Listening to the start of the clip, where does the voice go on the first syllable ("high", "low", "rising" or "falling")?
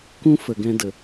high